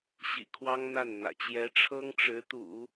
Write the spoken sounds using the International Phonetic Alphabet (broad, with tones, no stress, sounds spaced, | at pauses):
ɕ ḭ˨˩ kʰ w ɑ˥ ŋ n̪ a˥˩ n n̪ ä̰˨˩ t͡ɕ j ɛ˧˥ ʈ͡ʂʰ ɤ˥ ŋ ʈ͡ʂ ɻ̩˧˥ t̪ ṵ˨˩˦